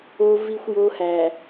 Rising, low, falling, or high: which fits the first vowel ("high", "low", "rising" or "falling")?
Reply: high